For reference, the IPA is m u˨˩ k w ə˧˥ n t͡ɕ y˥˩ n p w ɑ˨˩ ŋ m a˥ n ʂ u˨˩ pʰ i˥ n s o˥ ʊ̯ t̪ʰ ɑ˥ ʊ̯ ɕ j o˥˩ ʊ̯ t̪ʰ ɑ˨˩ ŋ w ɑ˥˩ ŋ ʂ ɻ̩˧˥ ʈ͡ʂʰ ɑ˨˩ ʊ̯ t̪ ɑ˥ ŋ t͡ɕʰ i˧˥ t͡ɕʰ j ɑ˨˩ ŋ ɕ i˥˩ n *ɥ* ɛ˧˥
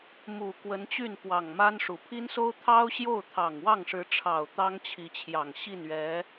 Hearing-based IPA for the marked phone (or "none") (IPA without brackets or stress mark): ɥ